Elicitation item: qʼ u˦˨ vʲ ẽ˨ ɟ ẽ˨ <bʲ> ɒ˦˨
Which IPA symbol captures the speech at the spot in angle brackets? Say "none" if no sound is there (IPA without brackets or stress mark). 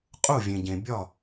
bʲ